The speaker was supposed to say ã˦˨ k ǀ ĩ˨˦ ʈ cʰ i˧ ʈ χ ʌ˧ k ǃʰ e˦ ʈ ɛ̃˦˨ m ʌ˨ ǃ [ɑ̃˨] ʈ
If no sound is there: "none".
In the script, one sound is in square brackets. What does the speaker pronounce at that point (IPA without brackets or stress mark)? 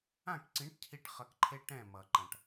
ã˨